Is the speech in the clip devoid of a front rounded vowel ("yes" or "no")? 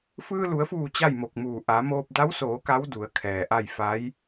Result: yes